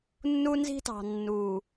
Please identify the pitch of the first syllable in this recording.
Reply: high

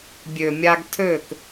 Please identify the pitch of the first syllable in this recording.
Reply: low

